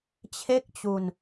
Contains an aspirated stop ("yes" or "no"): yes